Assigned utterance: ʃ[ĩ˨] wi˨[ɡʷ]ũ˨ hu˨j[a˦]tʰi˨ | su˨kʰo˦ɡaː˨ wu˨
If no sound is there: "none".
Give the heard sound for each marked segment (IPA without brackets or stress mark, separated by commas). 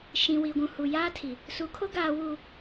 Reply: ĩ˨, ɡʷ, aː˦